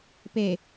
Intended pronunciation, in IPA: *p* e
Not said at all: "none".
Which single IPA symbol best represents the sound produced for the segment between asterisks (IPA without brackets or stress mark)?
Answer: p